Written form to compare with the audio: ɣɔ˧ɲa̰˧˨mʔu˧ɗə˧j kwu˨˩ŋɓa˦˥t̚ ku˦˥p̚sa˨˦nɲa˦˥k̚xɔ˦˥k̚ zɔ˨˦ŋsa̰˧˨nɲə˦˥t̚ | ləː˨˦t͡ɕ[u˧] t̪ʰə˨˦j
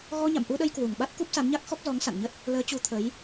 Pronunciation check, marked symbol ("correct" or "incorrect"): incorrect